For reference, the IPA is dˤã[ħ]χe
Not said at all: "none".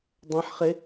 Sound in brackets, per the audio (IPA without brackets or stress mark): ħ